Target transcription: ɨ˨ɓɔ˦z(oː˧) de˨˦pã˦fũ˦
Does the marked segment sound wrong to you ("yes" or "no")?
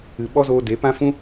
no